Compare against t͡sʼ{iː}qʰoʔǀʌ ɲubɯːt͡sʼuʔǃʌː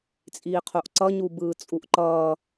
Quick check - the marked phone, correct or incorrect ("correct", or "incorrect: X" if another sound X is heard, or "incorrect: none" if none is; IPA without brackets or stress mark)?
correct